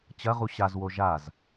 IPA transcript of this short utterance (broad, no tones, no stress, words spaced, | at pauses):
t͡ɕɐʁu ɕazwo ʒaz